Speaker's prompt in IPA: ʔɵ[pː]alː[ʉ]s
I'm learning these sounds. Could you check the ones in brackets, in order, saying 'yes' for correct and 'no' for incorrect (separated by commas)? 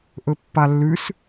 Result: yes, yes